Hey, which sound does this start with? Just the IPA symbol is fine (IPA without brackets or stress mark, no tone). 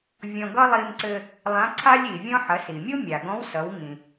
vʲ